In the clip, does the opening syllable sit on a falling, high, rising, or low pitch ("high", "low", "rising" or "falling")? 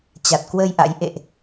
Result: low